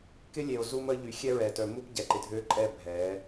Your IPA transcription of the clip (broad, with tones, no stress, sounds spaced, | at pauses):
k ɪ˦ lʲ e˨ o̯ z u˦ m ə˦ ʎ y˨ xʲ ɛ˦ ɹ ɛː˨ t œ˨ m u˦ p ɟ ɛ˨ ǃ ɪ˨ dʱ ø˦ ǃʼ ɛ˦˨ bʱ ɛː˨˦